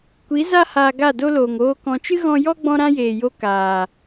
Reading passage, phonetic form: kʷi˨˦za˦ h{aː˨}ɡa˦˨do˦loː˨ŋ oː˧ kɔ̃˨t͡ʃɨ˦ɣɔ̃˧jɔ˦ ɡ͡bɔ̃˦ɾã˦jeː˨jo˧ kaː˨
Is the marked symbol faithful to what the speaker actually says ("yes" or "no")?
no